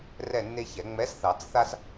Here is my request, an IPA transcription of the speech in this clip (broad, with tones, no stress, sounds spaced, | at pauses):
r ɛ˦˨ nː e˦ ç ɛ˨˩˦ ŋ͡m ɛ˨˥ s θ ɑ˨˩˦ t͡s θ a˦ s